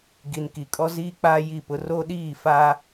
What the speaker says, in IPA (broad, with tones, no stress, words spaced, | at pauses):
ɡi˨nki˨kʼɔ˦ ziː˦k͡paː˦ji˦˨pʊ˦ ro˦ɗiː˦˨ fa˦